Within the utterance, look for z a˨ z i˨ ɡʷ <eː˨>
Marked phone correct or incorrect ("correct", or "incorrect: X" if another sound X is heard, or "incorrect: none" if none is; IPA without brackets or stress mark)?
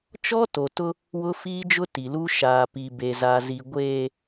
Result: correct